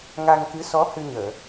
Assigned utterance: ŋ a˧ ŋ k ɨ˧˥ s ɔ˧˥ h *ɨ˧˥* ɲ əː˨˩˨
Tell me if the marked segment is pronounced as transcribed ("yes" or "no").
no